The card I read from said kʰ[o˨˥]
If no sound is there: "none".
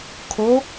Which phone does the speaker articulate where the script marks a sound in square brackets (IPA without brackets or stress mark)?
o˨˥